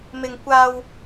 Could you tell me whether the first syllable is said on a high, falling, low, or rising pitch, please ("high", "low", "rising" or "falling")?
high